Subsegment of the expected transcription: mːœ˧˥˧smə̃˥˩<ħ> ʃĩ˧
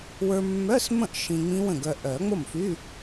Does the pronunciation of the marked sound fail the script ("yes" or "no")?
yes